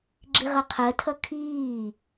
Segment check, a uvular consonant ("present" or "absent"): present